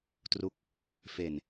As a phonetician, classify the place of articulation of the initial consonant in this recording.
alveolar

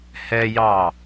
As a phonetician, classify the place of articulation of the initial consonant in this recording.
glottal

